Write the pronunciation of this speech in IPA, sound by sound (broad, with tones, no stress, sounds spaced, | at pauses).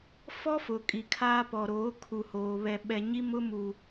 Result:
f ɔ˦ f ʊ˨ kʼ i˨ kʰ aː˦ p ɔ˨ ɾ oː˨˦ kʰ u˨ h oː˨ β ɛ˨ ɓ ɛ˨ ɲ i˦ m ʊ˦ m u˨